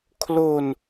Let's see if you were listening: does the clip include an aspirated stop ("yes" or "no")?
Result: yes